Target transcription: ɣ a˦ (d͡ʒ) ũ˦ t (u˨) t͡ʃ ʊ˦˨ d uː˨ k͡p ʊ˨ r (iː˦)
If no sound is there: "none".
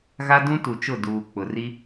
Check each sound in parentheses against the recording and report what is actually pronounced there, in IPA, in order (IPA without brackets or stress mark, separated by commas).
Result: d, u˨, i˦